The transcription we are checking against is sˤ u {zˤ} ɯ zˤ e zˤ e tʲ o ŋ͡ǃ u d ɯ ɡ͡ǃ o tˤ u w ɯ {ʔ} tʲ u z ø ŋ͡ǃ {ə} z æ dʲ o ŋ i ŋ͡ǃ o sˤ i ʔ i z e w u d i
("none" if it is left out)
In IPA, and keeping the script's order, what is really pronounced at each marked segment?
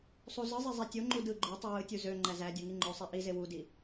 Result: z, none, æ

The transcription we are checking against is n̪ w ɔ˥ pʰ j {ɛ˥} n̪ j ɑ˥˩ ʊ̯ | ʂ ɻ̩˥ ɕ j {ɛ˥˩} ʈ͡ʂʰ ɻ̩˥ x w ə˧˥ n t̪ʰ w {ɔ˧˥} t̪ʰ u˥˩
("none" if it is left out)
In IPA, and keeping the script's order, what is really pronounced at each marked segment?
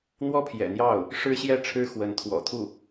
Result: ɛ̰˨˩, ɛ˥˩, ɔ̰˨˩

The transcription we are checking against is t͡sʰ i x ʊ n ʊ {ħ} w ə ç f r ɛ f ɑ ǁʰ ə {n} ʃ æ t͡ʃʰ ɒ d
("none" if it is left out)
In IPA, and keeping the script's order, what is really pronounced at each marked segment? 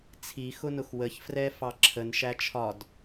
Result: x, n

